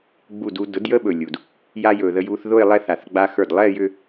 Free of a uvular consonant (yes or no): yes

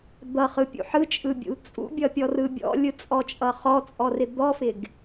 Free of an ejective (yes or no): no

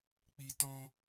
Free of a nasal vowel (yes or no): no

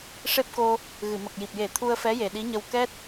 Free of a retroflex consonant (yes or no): no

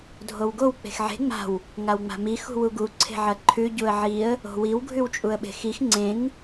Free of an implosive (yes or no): no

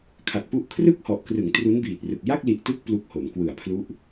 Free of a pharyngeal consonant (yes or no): yes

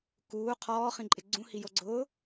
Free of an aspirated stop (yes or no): no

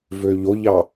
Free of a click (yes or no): yes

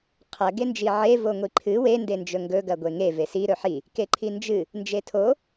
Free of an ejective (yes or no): yes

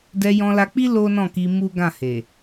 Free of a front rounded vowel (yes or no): yes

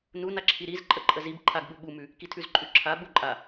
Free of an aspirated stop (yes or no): no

